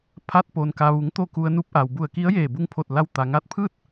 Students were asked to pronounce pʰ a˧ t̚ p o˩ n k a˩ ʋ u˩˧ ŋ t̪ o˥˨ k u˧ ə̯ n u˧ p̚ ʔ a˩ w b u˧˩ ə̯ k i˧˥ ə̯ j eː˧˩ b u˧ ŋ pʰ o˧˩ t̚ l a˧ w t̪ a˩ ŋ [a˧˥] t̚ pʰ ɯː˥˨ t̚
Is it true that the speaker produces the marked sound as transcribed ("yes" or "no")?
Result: yes